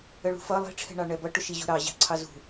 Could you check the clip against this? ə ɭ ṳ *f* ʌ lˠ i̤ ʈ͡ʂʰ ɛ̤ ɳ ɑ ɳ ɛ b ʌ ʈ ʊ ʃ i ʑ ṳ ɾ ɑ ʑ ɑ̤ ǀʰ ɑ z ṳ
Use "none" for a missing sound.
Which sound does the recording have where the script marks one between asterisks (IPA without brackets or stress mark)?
f